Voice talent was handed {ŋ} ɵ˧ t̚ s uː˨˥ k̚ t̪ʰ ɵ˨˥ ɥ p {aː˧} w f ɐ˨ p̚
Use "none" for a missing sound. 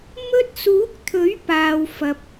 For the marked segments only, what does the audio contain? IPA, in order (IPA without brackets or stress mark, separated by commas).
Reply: m, aː˨